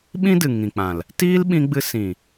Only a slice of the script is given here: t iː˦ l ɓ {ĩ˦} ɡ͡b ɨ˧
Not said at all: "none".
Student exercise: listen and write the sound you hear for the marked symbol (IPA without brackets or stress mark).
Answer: ĩ˧